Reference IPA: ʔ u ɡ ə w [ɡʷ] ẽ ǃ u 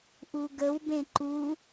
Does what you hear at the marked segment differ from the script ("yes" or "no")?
yes